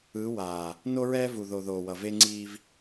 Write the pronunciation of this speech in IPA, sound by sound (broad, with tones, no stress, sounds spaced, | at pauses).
ɯ˨˦ w aː˨ | n o˦ ɹ ɛː˦ v u˨ ð o˨ ð oː˨ w ʌ˨ v e˦ ŋ͡ǀ iː˦ v